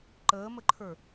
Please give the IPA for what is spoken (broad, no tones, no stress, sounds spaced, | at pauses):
ǃ əː m ə ǃʰ ə˞